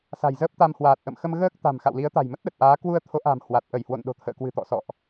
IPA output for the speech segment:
s a̤˨˩ j z əː˦˥ p̚ t̪ a˧ m h w aː˨˩ t̚ ʔ ə̰˧˨ m x ə˧ m ɣ əː˦˥ k̚ t̪ a̤˨˩ m x a̰˧˨ w l i˨˦ ə̯ t̪ a̤˨˩ j m ə˦˥ t̚ ɗ ə˨˩ t̚ ʔ aː˨˦ k w u˧ ə̯ t̪ʰ o˨˦ ʔ a̤˨˩ m h w a˨˩ t̚ ʔ ə˧˩ j h w o̰˧˨ n ɗ o̤˨˩ t̪ʰ ə̰ː˧˨ k w ɨ̤˨˩ t̪ ɔ̰˧˨ s ɔ̰˧˨ ʔ

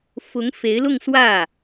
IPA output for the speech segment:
f ʊ˧˥ ŋ f e˧˥ ɪ̯ l ʊ˥˧ ŋ s w ä˥˩

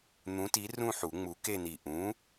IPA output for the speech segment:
n̪ ũ˨˥ t i˨˥ r ũ˥˨ ħ u˨˩˦ ŋ͡m u˨˥ k e˥˨ n i˧˩ ʔ ũ˨˥

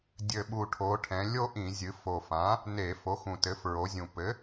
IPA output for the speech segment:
dʲ ɘ˨˩ ɓ u˨˩ ʈʰ o˩˧ ʈʰ ɛ̃˩˧ lʲ o˥˧ ʔ ĩ˧˩˧ zʲ ɨ˩˧ f o˨˩ f ã˩˥ | n e˧˩˧ f o˩˥ x ũ˨˩ t ɘ˩˥ f ɹ o˩˧ zʲ ũ˨˩ p ɘ˩˥

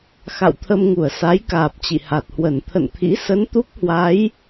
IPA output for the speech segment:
x a̰˧˨ w t̪ʰ ə˧ m ŋ u˧˩ ə̯ s a˨˦ j k aː˨˩ p̚ t͡ɕ ḭ˧˨ h a˨˩ t̚ h w ə˧˩ n t̪ʰ ə̰˧˨ n t̪ʰ ḭ˧˥ s ə˨˦ n t̪ u˦˥ k̚ h w a˨˦ j

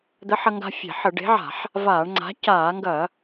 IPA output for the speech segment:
d̪ ə˨˥ ħ ɐ˧ ŋ ɡ a̤˧ fʲ e̤˧˩˧ ħ ə˧˩˧ ɖ e̤˨˥ ʕ a̤˧˩˧ ħ | v aː˧˩˧ ɳ ŋ͡ǀ a̤˨˥ c aː˧˩˧ ŋ ɡ ɐ˧˩˧

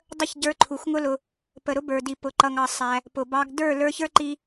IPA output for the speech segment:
dˤ ə˦˨ ç ɟ ə˞˧ ǃʰ u˨ x ŋ ʊ˦ l ʊ˧ | p ə˨ ɾ ʊ˦ b ə˞˨ d i˨ p ʊ˨ ǃ ʌ˨ ŋ ɑ˨ sˤ æ˧ | p ʊ˨ b ɑ˧ ɡ d ə˞˦˨ l ə˞˧ ç ə˞˦ ǃ i˦

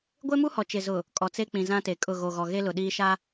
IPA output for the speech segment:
ɡʷ e˦ m u˦ h ɔ˨ t͡ʃ ɪ˨ z ʊ˨ | kʼ ɔ˨ t͡s e˦ k͡p ĩ˨ z ã˦ t e˨ kʼ ʊ˦˨ ɣ o˨ ɣ ɔ˨ ɣ e˦ l ʊ˨ ɗ iː˦ ʃ a˦

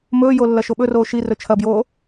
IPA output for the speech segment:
m ɵː j o lː ɐ ʃ o ɓ ɵ r oː ʃ i r ɵ t͡ʃʰ ɐ b j oː

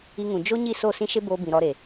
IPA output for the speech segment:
i˧ ŋ ũ˨ d͡ʒ o˦ ɲ i˦˨ s o˦˨ s ĩ˦ ʃ e˦ b oː˧ b ĩ˨ ɾ ɔ˧ ɾ e˨

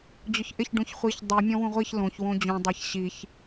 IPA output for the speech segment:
d͡ʑ ʊ ç ʔ ɪ ç ɖ ũ ç χʷ i ç dˤ i mʲ ɔ̃ w ũ ʁʷ i ç l õ ç w õ d͡ʑ ũ dˤ a ç ɕ i ç

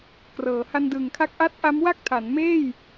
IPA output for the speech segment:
k r ɤː˩˦ h a˧ n d ɯː˨˩ ŋ kʰ a˦˥ k̚ ʔ a˥˩ t̚ ʔ a˦˥ m w a˥˩ k̚ tʰ a˩˦ n m eː˥˩ j

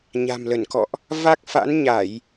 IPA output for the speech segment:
ɲ a̤˨˩ m l ə˧˩ n k ɔ̰˧˨ ʔ | v a˦˥ k̚ f a̰˧˥ n ɲ a˧˩˨ j

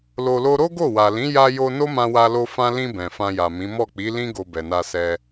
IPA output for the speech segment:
l o˧ l o˦ ɾ o˦ ɡ o˦˨ w a˨ l ĩ˨˦ j a˧ j o˧ n o˦ m ã˧ w a˧ l o˧ f ã˧ l ĩ˧ b ɛ̃˨ f ã˧ j a˨ m ĩ˨˦ m ɔ˦˨ k͡p i˨˦ l ĩ˦ ɡ o˧ b ɛ˨ n a˧ s ɛ˧

